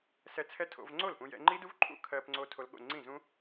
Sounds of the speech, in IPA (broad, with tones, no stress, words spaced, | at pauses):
sɛ˧ t͡sʰɛ˦˥tʰo̰˧vŋ͡ǀo˥˩lpũ˧ jɛ̰˧ŋ͡ǃi˦˥du˦˥vǃʰṵ˥˩ kʰɜ˧pŋ͡ǀo˧ tʰo˧lɠo̰˥˩ ŋ͡ǀĩ˥˩zũ˦˥